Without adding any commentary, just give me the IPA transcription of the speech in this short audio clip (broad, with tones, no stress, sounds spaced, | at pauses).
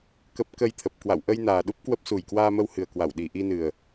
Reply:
k ə˦˥ p̚ k ə˧ j t̪ʰ ə˨˩ p̚ k w a̰˧˨ w ʔ ə˧ j n aː˨˩ ɗ u˦˥ p̚ k w ə˦˥ p̚ s u˨˩ j k w aː˧ m ə˧ w h ɨ˨˩ ə̯ k w a˧˩ w ɗ i˨˩ ʔ i˧ n ɨ˨˩ ə̯